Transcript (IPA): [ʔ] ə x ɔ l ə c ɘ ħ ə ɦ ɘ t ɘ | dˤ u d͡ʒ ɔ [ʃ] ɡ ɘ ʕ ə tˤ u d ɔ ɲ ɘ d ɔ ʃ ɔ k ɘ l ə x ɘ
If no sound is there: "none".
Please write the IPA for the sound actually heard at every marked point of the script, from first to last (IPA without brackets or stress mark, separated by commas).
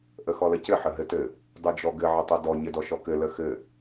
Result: ʔ, none